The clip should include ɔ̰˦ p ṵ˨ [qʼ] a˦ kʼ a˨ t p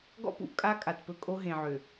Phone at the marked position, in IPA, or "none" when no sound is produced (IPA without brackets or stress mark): kʼ